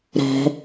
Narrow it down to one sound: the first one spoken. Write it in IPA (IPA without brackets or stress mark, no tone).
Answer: ɾ